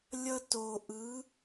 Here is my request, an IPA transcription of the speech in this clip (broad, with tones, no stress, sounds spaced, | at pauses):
lʲ ʌ˧ t o˨ ʔ ɯ˨˦